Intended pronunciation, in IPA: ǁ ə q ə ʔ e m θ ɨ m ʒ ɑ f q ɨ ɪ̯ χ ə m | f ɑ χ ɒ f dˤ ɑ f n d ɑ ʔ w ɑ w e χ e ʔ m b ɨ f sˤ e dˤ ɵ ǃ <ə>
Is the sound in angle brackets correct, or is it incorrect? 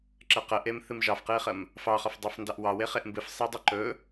incorrect